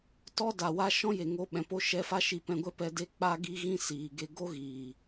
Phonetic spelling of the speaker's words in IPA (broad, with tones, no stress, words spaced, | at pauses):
tɔ˦da˨wa˦ ʃɔ̃˦je˨ ŋo˧ ɓɛ̃˨po˧ ʃɛ˧ fa˦ʃi˧pɛ̃˧ɡʷɛ˦ pɛ˧de˦ k͡pa˧ɡi˧ɣĩ˧ siː˨ɡe˧ ɡo˦ɣiː˨